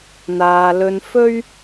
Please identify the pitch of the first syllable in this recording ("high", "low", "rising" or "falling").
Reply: low